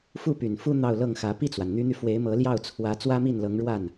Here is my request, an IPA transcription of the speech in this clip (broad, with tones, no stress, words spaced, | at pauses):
fu˥˩py˨˩n fu˥ n̪ɑ˥˧ʊ̯lɤ˥˩ŋxä˧˥ pi˥˩t͡swa˩nn̪y˧˥n̪y˧ fwe˧˥ɪ̯mɤ˧˥ljɑ˥˩ʊ̯ t͡sʰwä˧˥ t͡swä˥mi˥˩nlɤ˧˥ŋɻwa˥˩n